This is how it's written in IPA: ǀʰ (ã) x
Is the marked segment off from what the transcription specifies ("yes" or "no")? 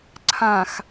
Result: no